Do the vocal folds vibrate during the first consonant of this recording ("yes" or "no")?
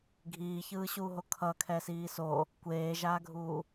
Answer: yes